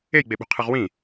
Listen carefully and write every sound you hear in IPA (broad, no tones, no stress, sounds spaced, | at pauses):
e j ɡ͡b e ɓ ṳ qʰ ɯ ʁ w ĩ